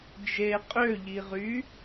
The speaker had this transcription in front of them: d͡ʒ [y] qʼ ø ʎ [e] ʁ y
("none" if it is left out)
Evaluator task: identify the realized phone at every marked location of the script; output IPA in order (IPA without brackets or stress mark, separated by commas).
e, i